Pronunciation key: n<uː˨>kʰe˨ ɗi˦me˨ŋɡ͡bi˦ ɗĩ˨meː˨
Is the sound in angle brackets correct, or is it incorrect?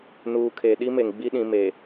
correct